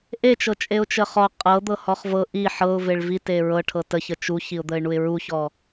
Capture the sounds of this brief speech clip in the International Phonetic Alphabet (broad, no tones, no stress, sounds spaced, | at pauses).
ʔ e t͡ʃ ɤ t͡ʃʼ e ʊ̯ t͡ʃ ə χ ɔ qʼ ɤ d̪ ɤ h ɔ χ v ɤ ʔ i ħ ɤ ʊ̯ v e ɭ v i t e ɹ ɤ ʈʰ ɤ t ə ç ə t͡ʃ u ç i ʊ̯ d̪ ə ɪ̯ ɳ u ɪ̯ ɹ u ç ɔ